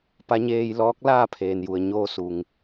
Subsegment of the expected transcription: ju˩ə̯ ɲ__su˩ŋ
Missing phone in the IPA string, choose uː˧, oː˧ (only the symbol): oː˧